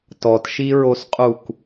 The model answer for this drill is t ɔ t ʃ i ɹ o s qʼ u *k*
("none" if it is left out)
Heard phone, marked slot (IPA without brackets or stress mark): k